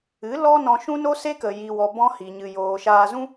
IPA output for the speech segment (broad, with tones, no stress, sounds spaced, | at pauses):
ɨ˨˦ l ɔ˦ n ɔ̃˧ ʃ ũ˦ n o˦ s e˦ k ə˨ j i˨ w ɔ˨ b ɔ̃˦ h i˨ ɲ ɨ˨ j oː˨ ʃ aː˧ z ũ˦